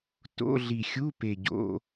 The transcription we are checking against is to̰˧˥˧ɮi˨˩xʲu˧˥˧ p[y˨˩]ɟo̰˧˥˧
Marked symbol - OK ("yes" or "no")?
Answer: no